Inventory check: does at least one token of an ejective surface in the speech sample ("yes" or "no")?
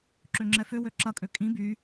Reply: yes